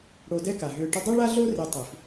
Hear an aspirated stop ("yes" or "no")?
no